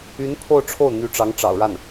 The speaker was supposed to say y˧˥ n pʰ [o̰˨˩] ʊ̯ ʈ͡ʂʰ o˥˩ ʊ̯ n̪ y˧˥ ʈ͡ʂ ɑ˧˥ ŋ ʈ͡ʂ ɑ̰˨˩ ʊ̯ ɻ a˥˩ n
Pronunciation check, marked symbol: incorrect: o˥˧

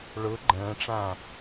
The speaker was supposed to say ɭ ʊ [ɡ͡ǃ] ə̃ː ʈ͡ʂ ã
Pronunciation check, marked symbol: correct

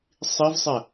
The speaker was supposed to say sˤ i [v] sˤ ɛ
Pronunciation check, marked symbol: correct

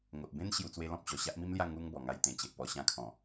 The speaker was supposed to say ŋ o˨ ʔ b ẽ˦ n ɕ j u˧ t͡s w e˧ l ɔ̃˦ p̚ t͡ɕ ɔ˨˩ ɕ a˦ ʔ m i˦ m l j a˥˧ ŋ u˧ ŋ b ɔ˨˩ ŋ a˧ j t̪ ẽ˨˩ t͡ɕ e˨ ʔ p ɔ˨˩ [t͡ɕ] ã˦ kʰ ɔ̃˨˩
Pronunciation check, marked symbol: incorrect: ɕ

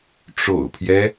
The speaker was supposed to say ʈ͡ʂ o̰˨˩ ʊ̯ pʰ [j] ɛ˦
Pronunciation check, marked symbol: correct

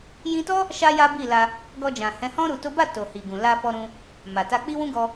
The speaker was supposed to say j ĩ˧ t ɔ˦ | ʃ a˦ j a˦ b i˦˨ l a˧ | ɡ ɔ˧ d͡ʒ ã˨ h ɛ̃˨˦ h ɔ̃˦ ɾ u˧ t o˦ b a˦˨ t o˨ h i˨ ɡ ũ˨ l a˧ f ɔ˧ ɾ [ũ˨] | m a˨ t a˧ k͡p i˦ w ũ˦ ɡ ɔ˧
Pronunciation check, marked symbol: incorrect: ũ˧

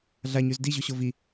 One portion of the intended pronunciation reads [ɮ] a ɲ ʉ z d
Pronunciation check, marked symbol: correct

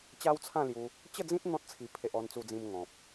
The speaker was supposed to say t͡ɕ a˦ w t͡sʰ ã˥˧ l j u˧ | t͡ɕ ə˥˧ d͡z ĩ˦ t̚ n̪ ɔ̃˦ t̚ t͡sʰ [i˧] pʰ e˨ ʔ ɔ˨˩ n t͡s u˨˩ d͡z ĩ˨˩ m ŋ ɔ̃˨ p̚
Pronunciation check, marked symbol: incorrect: i˨˩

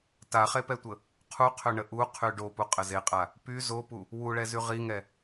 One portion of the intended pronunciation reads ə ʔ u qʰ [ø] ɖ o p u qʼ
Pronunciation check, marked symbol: incorrect: y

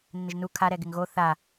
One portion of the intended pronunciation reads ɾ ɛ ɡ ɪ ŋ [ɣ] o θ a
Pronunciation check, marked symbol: correct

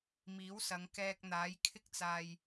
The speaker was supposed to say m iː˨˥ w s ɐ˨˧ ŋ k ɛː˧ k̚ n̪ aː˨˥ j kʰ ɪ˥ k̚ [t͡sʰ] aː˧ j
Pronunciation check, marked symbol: incorrect: t͡s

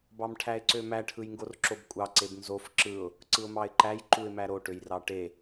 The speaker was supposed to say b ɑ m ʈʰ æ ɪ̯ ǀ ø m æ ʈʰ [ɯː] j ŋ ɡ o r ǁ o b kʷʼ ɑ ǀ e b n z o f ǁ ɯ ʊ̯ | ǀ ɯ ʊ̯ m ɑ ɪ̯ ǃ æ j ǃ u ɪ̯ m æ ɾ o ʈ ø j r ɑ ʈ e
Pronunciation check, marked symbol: incorrect: ɯ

